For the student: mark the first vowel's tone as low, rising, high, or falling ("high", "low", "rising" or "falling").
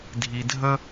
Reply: low